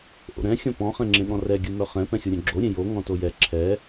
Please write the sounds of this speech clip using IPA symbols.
ʔ o̰ ɾ ɛ̃ xʲ ɔ̃ p ɔ̃ χ ɛ̃ ŋ͡ǁ ẽ ɠ ɔ̃ r ɛ ɡʲ u m œ χ ɛ̃ p ɛ̃ xʲ o ɾʲ œ̃ ɡ͡ǁ o ɾʲ ẽ j o ŋ ɔ̃ t o j ɛ ǁʰ ɛ

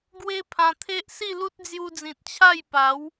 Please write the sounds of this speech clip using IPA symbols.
ɡ w e˦ pʰ ã˧ t̪ʰ e˦ ʔ s i˥˧ l u˦ t̚ d͡z j u˧ d͡z ĩ˨ t̚ t͡ɕʰ a˥˧ j p a˨˦ w

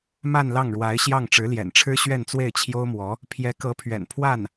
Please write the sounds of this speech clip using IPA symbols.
m a˥˧ n l ɑ˥˩ ŋ ɻ w a˧˥ ɪ̯ ɕ j ɑ˥˩ ŋ ʈ͡ʂ ɻ̩˧˥ l j ɛ̰˨˩ n ʈ͡ʂʰ ɻ̩˥ ɕ ɥ ɛ˥˧ n t͡s w e˥˩ ɪ̯ t͡ɕʰ j o˥ ʊ̯ m w ɔ˧˥ | pʰ j ɛ˧˥ k ɤ˧˥ pʰ ɥ ɛ̰˨˩ n pʰ w a˥˩ n

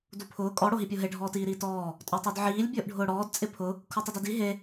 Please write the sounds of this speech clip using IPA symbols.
d u pʰ ʊː kʼ ɔ ɽ o ɦ i pʲ o ɦ e ɖʱ ɔː t iː ɾ iː t ɔː | tʼ ɔ tˤ o d ʕ iː lʲ bʲ ʊː ʔ ɖʱ ʊː ɽ ɔː d t͡sʼ ɪ pʰ ʊ | kʰ u tˤ i d ɛ d i ɦ e

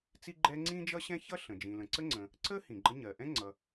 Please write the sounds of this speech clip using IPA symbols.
t͡s i˥ ɡ͡ǃ ɛ˥ ŋ͡ǀ ĩ˥ d͡ʒ ʌ˥ ɕ ɛ̃˥ ç ʌ˥ ɬ ə̃˩ d͡ʒ ĩ˩ l ə̃˩ ǀ ə˥ ŋ͡ǀ ə̃˩ | ǀ ə˥ h ĩ˩ ɡ͡ǃ ə˥ ɲ ɜ˩ ʔ ɛ̃˥ ŋ͡ǀ ʌ˩

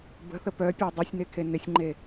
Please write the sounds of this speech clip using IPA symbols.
b ə̤ θ ə p œ pʲ œ dˤ y sʲ n e kʰ e n ɪ sʲ ŋ͡ǃ e

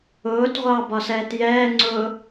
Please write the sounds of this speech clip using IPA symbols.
ʊː t ʁʷ ɑ b ɒ s ɛː t j ɛː ŋ͡ǀ ʊː

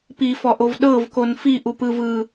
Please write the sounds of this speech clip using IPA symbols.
p i f ɔ ʔ o v ɗ ɤ v k o n f i ʔ u p ɯ v ɯ

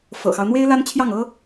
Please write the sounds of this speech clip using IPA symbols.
f ɤ̰˨˩ x ɑ˦ ʊ̯ n̪ w e˥ ɪ̯ l a˥ n t͡ɕʰ j ɑ˥˩ ŋ ɤ˥

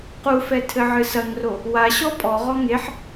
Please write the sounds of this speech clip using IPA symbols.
q u f ɛ tʰ ɘ ʕ ɨ s ɐ ŋ r o | w a ɕ ɔ pʼ ɔ ʁ ɔ ŋ e ħ

